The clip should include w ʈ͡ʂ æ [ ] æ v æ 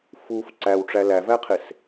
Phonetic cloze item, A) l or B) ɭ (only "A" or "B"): A